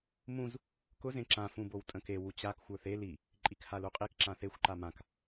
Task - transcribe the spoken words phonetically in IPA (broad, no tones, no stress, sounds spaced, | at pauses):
m ũ z | k ʊ z ẽ ǁ ã f ũ b o w tʼ ə̃ k e w u t͡ɕ a k xʷ ə˞ θ e l i | ǃʼ i k h a l u qʼ i k ǁ ã θ e xʷ ǃ a m ã k